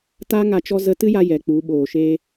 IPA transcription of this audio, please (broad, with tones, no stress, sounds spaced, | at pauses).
t a˦ ŋ a˧ t͡ʃ ɔ˦ z ə˧ t ɨ˦ j a˧ j ɛ˨ k͡p u˨˦ ɓ oː˨ ʃ eː˧